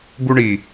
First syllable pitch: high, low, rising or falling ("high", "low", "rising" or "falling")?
high